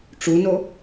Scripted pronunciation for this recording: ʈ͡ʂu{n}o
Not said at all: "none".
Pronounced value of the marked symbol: n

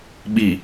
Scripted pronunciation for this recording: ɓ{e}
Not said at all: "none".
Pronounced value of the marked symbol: i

